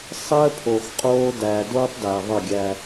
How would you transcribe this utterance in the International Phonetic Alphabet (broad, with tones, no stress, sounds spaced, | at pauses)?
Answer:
sˤ əː˦ pʰ o˨ x qʼ oː˦ d æ˨ d oː˦ tˤ d æ˨ ðˤ ə˦˨ ɡʲ æ˦